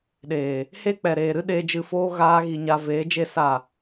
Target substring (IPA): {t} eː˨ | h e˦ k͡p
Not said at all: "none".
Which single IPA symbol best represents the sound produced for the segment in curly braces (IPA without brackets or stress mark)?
ɗ